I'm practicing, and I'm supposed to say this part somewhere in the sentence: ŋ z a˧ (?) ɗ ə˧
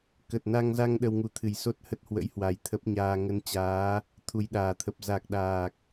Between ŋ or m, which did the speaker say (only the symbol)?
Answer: ŋ